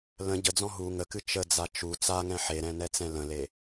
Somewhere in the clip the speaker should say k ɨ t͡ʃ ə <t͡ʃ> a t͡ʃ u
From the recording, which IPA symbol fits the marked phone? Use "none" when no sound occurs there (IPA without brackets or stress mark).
d͡z